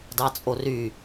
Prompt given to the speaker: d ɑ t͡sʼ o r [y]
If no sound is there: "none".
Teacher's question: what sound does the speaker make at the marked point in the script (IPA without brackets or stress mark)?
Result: y